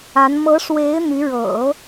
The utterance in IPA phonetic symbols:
a˧˥ n m ɤ˧˥ ʂ w e˧˥ ɪ̯ n̪ y˧˥ ɻ ɤ̰˨˩˦

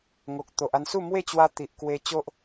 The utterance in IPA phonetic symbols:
ŋ o˨ k̚ t̪ o˨ ʔ a˧ n s u˥˧ m w e˥˧ t͡ɕ w a˧ t̪ i˨ ʔ k w e˧ t͡ɕ o˦ ʔ

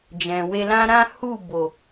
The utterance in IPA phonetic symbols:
d͡ʒ ɛ̃˨ w e˧ l ã˦ ɾ ã˦ h u˦˨ b o˨

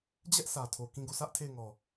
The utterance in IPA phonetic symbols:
d͡ʑ ɛ˦ ʔ s ä˨ tʰ o˨ k ĩ˦˨ ɡ o˦˨ sʰ ä˦ ʔ tʰ e˦˨ ɪ̯ ŋ ɔ˨

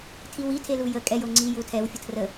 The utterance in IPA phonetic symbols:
tʰ i w i tʰ e l u j ə kʼ ɛ j o ŋ͡ǀ i j u tʰ ɛ w fʲ ə tʰ r ə

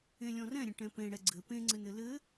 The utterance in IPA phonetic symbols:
ẽ lʲ ɔ̃ r ɛ̃ ɾʲ ə̃ ʈ ɛ̃ p ẽ ɽ ɛ ɡ͡ǀ ɘ p ẽ ŋ͡ǀ ɘ n ɘ l ɘ

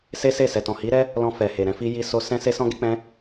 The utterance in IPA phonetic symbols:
s e˦ s e˦˨ s ɛ˨ t ɔ̃˨ h i˨˦ ɾ ɛ˦ | l ɔ̃˧ f ɛ˨ h e˨ ɾ ɛ̃˧ f i˦ j i˧ s o˧ s ɛ̃˦ s e˦ s ɔ̃˦ ɡ e˦ k͡p ɛ̃˦

